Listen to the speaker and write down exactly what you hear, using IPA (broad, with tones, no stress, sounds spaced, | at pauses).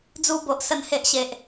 d͡z u˧ b o˨ ʔ s ə˨˩ n h e˨ ʔ ɕ e˨ ʔ